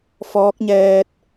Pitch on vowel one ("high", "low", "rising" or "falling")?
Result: rising